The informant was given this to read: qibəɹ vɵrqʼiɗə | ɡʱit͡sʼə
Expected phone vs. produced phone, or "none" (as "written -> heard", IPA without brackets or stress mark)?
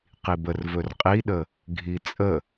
ɹ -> r